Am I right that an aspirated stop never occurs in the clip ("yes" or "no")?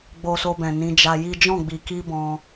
yes